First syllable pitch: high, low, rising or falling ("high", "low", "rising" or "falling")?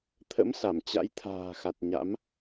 rising